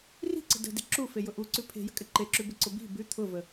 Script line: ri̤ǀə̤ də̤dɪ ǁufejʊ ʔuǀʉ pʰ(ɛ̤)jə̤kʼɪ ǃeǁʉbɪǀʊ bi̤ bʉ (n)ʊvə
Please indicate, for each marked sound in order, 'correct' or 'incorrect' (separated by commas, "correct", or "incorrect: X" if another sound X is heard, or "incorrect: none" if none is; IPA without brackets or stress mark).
incorrect: e̤, incorrect: t̪ʰ